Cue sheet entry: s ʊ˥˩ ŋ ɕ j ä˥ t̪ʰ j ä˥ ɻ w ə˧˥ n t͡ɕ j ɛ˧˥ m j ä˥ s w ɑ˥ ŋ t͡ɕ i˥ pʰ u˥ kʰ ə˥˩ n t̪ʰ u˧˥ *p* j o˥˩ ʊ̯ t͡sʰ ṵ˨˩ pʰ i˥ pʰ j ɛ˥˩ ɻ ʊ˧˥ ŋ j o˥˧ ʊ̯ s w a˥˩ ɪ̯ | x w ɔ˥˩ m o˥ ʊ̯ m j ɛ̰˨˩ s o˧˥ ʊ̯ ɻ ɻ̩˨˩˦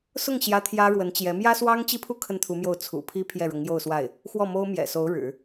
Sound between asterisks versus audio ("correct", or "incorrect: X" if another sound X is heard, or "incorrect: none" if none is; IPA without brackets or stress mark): incorrect: m